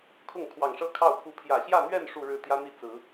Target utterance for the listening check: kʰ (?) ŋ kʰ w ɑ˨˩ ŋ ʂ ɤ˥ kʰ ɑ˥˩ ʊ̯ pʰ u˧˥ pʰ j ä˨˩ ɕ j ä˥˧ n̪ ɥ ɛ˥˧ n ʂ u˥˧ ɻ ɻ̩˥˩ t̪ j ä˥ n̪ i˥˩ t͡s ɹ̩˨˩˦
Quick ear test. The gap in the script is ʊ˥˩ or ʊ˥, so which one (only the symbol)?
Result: ʊ˥˩